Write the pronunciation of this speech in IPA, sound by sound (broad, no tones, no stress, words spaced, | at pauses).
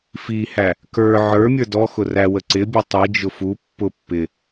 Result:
fihæ | kə˞ ʕə˞ mʲə˞dɔxʊ ræwə ǀɪbʲʊ tˤid͡ʒʊ fu pːʊ pːɪ